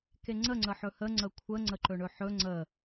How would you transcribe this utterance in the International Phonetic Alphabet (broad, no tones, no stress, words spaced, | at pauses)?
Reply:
keŋ͡ǀə ŋ͡ǀəħɵhə ŋ͡ǀəkʷʰə ŋ͡ǀəǃɵɳɵħɵ ŋ͡ǀə